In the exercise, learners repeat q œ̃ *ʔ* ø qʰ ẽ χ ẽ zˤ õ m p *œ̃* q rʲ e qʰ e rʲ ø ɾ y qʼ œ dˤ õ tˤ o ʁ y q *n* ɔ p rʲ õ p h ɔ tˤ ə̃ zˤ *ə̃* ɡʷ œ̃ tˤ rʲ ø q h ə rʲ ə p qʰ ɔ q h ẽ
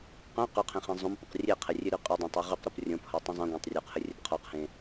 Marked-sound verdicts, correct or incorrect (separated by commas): incorrect, incorrect, incorrect, correct